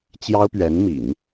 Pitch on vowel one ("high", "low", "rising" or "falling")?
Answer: high